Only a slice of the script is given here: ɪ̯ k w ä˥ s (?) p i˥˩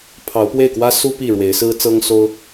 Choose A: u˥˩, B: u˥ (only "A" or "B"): B